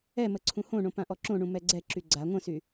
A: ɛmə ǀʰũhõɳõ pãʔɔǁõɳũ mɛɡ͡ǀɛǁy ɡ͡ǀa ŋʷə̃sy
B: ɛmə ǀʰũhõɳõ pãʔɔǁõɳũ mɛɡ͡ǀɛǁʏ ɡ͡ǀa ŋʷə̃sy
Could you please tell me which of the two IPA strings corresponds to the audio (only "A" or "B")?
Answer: A